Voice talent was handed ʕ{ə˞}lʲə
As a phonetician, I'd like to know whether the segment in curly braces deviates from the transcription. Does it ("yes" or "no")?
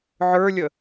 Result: no